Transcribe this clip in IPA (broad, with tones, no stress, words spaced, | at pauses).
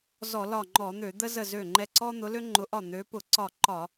zɔ˧˩˧lɒ˧˩ŋ͡ǃɔ˧˩˧n̪ø˧˩˧ d̪ə˦zə˧˩zø˧˩ ŋ͡ǃɛ˧˩ǀɔ˦n̪ʊ˨˦ lø˦ŋ͡ǃʊ˨˦ʔɒ˧˩ n̪ø˨˦pʊ˧˩˧ ǀɒ˧˩ǃɒ˧˩˧